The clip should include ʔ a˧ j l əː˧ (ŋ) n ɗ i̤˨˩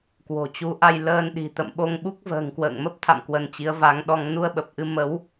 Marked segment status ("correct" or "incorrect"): incorrect